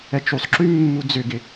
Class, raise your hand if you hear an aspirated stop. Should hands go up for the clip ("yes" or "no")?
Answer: no